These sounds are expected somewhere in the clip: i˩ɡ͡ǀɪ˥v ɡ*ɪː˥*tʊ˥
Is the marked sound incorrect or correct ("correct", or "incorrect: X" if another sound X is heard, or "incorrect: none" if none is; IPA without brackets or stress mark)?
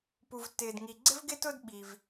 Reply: incorrect: ɪ˥